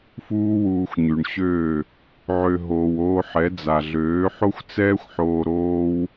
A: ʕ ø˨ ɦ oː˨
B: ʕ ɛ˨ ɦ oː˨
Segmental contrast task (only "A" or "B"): A